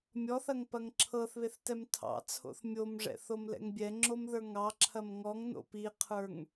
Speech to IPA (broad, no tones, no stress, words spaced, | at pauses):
mʲɔθɐŋpɐŋ ǁʰɤθβeθtɛm tʰɑ̰t͡sʰo̰θ mʲomʐɛ̰θomlɛ̰ŋ bʲɛŋ͡ǁomðə˞ ŋɑǁʰɐm ŋɔŋno̰ piqʰə˞ŋ